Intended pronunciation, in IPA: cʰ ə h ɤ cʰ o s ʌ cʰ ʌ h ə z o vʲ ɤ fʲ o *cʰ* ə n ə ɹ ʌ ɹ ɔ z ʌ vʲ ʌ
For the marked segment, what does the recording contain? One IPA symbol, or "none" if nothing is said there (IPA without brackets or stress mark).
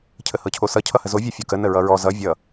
k